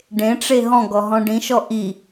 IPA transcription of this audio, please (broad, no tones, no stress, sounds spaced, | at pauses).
ɖ ẽ ʈ͡ʂ e ɦ ɔ̃ ɡ ɔ ɦ ɔ̃ ɖ ĩ ʃ ɔ ʔ i